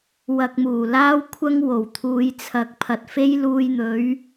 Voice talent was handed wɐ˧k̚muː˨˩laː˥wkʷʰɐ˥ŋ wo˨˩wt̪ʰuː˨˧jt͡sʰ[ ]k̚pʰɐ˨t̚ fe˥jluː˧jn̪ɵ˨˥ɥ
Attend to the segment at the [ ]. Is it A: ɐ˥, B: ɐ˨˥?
B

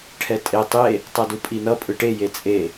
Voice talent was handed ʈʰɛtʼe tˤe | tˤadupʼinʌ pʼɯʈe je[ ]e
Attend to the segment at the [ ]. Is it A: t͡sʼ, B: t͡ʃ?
A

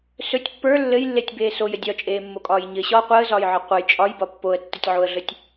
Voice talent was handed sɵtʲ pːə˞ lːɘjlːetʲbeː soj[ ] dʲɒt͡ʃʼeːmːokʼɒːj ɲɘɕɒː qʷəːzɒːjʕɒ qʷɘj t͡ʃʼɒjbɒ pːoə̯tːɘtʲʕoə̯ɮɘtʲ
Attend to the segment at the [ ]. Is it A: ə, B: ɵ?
A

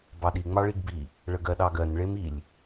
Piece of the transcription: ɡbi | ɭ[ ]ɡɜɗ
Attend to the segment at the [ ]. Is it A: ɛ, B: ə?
B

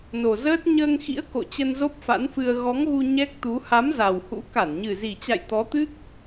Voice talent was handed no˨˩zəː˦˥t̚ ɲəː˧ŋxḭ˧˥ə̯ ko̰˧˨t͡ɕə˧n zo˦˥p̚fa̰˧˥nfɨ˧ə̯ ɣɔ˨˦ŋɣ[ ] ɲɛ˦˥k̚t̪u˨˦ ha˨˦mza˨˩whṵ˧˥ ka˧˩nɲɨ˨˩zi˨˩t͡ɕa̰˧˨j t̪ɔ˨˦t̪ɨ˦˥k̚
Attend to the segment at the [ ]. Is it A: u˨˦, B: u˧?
B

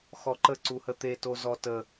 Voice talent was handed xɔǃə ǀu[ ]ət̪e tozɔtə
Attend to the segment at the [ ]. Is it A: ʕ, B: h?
B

